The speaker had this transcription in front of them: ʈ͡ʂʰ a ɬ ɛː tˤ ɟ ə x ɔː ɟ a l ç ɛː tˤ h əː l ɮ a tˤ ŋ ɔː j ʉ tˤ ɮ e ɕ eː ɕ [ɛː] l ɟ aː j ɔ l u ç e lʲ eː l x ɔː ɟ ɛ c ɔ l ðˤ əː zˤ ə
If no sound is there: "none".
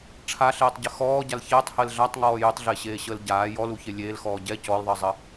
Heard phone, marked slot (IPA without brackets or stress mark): əː